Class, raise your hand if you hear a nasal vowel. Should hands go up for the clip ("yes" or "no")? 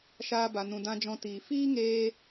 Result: yes